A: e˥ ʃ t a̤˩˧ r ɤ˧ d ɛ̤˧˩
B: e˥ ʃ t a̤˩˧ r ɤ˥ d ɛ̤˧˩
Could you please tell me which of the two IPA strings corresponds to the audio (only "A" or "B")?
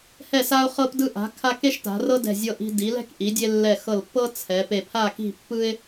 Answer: B